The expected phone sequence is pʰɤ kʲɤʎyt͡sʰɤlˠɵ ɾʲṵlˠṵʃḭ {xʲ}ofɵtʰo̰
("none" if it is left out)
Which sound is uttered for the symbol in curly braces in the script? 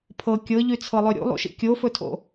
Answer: kʲ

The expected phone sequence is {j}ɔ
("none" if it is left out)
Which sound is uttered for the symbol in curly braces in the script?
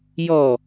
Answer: j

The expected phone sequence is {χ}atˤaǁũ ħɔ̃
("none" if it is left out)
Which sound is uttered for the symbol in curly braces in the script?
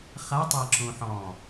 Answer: χ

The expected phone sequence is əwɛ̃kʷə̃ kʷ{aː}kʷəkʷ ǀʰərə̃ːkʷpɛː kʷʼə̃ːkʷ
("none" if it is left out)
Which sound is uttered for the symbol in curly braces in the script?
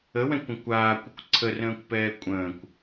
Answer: aː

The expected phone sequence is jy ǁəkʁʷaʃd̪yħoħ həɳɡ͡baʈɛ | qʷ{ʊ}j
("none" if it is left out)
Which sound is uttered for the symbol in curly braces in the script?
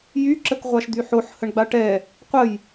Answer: ə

